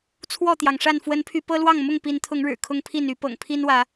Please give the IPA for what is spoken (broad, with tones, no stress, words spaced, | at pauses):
t͡sʰwɔ˥˨t̪jɑ˩ŋʂa˥˨n fwə˨˦npʰy˨˦ pɤ˦lwɑ˥˨ŋ mʊ˥˨ŋpi˨˦nt̪ʰʊ˨˦ŋɻɻ̩˨˩ kʰʊ˦ŋpʰi˥˨n y˨˦pɤ̰˨˩ŋpʰi˦nwä˨˦